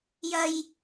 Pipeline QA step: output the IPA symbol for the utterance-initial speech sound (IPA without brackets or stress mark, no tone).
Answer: j